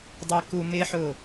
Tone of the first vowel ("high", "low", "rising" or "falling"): low